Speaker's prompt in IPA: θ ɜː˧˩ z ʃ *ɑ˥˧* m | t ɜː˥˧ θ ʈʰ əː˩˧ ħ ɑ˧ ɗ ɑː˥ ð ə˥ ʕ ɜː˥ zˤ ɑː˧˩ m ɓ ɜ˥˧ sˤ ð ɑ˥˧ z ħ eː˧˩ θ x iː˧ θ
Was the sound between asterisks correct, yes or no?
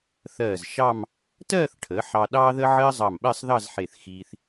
yes